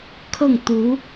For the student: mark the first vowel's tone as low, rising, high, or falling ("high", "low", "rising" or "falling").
falling